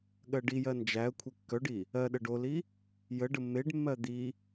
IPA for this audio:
ɠ ɜ ɖ i j ɜ n d͡ʒ æ ə̯ kʷʰ e kː œ ɖ i | ɜ ɗ ə ɖ o l i | j ə ɖ ə mː e ɖ mː ɜ d̪ i

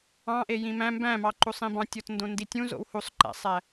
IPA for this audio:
ɑ̃ ʔ e j ĩ m æ̃ m b æ̃ m ɑ ǃ u sˤ ĩ b ɑ̃ tʲ o t n d õ n d i tʲ ũ z o̰ w h u sˤ ǃ æ̰ sˤ æ

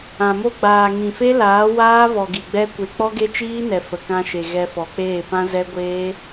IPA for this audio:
ã˨ m o˦ ɡ͡b aː˨ ŋ ĩ˨ f e˦ l aː˨˦ w aː˦ v ɔ˨ ɡ i˨ ɡ͡b ɛ˦ kʷ e˧ k͡p ɔ˦ ɡ e˦ t͡ʃ iː˦ n ɛ˨ f ə˨ k ã˧ ʃ e˨ ɣ ɛ˧ f ɔ˨ k͡p eː˦˨ p ã˦ z ɛ˦ ɡʷ eː˦

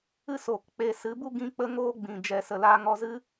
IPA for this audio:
ɨ˦˨ s oː˨ k k͡p e˧ s ɨ˨˦ b u˦ ɡ ĩ˦ k͡p ə˦ ŋ oː˦ ɡ͡b ĩ˨ d͡ʒ ɛ˨ s ə˨ l aː˧ ŋ ɔ˧ z ɨ˦

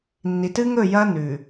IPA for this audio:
nː i˨ t ɨ˦ ŋ ɵ˦˨ j ɐ˦ n ʉ˨

